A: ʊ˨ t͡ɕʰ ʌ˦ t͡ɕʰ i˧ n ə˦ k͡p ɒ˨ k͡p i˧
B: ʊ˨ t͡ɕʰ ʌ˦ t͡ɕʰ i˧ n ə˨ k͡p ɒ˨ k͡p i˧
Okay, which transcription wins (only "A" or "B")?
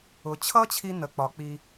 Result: B